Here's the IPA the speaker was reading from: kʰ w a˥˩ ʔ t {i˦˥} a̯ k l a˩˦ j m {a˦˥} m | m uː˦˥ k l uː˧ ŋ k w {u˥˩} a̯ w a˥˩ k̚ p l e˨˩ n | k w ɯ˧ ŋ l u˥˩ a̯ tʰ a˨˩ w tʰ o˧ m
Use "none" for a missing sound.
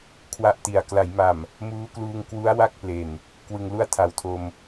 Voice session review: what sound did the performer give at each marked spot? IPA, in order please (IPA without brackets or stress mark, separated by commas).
i˨˩, a˨˩, u˦˥